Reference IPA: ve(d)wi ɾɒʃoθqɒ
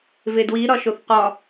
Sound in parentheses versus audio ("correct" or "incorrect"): correct